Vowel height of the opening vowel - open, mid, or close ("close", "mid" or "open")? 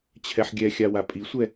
mid